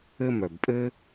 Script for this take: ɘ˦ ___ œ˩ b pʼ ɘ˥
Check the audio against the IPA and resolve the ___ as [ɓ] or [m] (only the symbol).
m